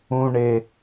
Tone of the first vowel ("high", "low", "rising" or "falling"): low